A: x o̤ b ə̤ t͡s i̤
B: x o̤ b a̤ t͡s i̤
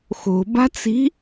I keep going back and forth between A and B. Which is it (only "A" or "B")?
B